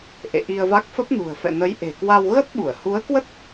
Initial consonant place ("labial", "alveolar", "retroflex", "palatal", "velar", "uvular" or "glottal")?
glottal